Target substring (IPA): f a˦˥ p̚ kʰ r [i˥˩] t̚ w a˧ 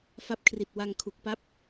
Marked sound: incorrect: i˨˩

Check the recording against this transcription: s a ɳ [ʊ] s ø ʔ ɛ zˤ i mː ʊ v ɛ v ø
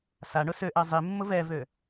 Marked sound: correct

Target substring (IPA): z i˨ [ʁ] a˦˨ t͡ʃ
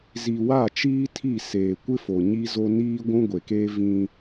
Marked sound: incorrect: w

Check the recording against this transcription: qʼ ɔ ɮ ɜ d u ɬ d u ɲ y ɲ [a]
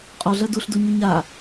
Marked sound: correct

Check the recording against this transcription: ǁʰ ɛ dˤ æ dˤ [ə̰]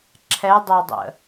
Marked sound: correct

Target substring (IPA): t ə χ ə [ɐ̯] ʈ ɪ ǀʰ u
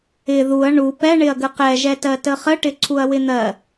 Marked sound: incorrect: none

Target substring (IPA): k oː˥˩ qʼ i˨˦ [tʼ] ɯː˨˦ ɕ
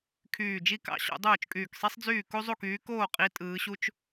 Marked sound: correct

